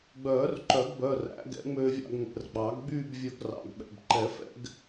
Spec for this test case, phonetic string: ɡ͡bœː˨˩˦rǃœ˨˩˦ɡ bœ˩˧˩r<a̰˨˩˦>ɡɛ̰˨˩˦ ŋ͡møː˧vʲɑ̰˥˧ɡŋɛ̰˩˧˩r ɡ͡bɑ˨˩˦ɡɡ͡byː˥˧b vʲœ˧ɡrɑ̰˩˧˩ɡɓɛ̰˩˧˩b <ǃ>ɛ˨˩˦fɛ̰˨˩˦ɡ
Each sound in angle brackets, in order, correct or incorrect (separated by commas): incorrect, correct